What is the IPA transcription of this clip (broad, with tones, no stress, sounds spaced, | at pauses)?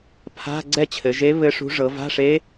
pʰ a̤˧˥˧ ɡ͡ǀ ɛ˥˧ t͡ɕʰ ɘ˩˧ ʒ e˧˥ β ɘ˧˥ ʂ ṳ˧˥ ʐ ɤ˩˧ v a̤˧˥˧ ʂ e˧˥